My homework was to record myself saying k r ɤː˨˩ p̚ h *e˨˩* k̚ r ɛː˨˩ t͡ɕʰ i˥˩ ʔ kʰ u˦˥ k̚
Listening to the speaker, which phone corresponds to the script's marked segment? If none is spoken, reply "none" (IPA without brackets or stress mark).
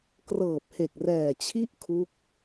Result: e˨˩